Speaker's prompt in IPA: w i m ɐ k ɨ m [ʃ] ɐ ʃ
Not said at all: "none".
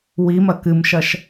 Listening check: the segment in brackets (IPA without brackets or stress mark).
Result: ʃ